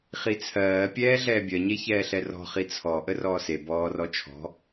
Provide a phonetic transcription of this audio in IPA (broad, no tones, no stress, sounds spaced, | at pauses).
χ i t͡sʰ ɜː pʲ ɛː ɮ ɛː bʲ ɜ ɲ e ç ɛː ɬ ɛ r ɔ̤ χ i t͡sʰ ɔ ʔ ə r ɔː s e b ɔː r ɔ t͡ʃʰ ɔ̤